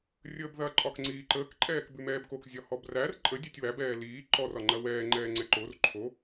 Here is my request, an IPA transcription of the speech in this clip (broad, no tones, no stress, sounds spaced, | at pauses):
rʲ əː b ð ɐ ǃʼ ɒ k ŋ͡ǀ iː ǃ əː k ǃʼ ɛː k b ʉ m ɛː b k o k zʲ ɒ h ɔ b r æ r ǃʼ ə dʲ ɛ tʲ w æ b ɛː l iː ǃ ɔ r ɒ ŋ͡ǃ ɐ w ɛː ŋ͡ǃ ɛː ŋ͡ǀ ɛ ǃ o r ǃʰ o